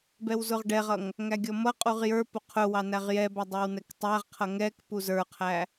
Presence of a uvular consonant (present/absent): present